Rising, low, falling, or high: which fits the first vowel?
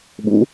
rising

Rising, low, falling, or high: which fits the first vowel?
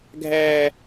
low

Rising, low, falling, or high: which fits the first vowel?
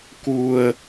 low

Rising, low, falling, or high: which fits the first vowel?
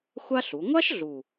high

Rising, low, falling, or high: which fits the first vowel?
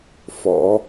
rising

